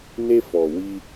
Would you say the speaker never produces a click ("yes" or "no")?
yes